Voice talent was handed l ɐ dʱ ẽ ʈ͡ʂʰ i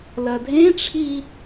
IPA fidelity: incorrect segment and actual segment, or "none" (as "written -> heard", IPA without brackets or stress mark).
none